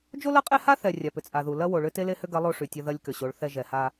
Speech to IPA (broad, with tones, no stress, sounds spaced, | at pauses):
d͡ʒ o˦ l ɐ˦ qʼ e˦ h a˦ θ ɛ˨ rʲ a˨ p ʏ˨ t͡sʼ a˨ ð u˨ l ɐ˦ w o˨ ɭ ʏ˦ t e˦ l e˦ h ʏ˦ ɡ ɐ˨˦ lˠ o˦ ʂ y˨ tʲ ɐ˦ ð ɐ˦ lʲ k ʏ˨ ɕ o˨˦ ɭ θ ɛ˦ ʒ ɛ˨ h a˦